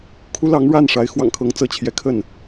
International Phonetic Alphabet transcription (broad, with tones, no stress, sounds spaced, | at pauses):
kʰ u˥ l ɑ˧˥ ŋ ɻ a˥˩ n ʂ a˧˥ ɪ̯ x w ɑ̰˨˩ ŋ kʰ ɤ˧˥ ŋ t͡s ɤ˧˥ t͡ɕʰ j ɛ˧˥ kʰ ə˥˩ n